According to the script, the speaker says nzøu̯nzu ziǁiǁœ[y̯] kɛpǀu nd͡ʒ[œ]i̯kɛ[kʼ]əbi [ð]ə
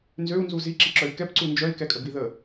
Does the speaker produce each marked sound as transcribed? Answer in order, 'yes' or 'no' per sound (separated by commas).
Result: yes, yes, yes, yes